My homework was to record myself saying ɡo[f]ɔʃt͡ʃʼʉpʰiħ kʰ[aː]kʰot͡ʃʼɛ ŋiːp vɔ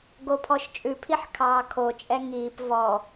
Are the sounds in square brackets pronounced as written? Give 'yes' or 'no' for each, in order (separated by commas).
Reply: no, no